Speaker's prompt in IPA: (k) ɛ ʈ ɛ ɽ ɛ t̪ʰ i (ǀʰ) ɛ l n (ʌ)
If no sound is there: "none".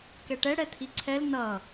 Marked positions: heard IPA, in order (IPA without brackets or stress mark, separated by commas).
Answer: k, ǀʰ, ʌ